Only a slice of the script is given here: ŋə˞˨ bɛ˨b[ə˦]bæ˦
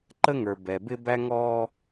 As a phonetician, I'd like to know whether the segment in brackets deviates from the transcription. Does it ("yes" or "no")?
yes